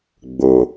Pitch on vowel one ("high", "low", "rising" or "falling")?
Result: low